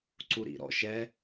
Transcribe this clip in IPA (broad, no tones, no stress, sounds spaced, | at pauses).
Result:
ǀ u ɾ ḭ ɾ ɔ̰ ʃ ɛ